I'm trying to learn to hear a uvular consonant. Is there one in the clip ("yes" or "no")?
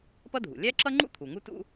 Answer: no